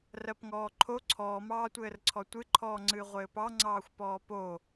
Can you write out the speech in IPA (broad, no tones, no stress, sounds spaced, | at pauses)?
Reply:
r ɜ p ŋ ɔː ǃʰ o ǀʰ ɔː m ɑː tʷ ɘː r ǀʰ ɔ tʷ ɨ ǃʰ ɔː ŋ͡ǀ ɨː ʁʷ ɘː p ɑ ŋ͡ǀ ɑː xʷ p ɔː p o